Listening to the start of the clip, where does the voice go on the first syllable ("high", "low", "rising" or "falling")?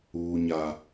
high